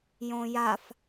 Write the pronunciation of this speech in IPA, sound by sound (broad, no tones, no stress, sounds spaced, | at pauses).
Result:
j õ j a f